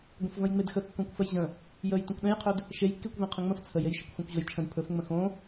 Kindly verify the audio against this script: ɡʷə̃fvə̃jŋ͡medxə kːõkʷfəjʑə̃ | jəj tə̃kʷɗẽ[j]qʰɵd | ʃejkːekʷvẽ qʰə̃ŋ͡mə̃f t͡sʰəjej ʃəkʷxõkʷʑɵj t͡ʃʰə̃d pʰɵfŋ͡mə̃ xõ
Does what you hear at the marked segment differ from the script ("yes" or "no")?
no